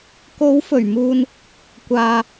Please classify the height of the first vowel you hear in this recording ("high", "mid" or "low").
mid